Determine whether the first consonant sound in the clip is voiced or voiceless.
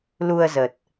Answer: voiced